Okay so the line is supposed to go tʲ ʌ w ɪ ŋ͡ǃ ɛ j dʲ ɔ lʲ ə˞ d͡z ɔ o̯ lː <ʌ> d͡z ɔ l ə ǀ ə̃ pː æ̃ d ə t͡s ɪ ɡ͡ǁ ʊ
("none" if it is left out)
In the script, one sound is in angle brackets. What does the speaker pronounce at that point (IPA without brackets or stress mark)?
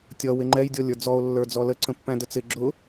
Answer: ə˞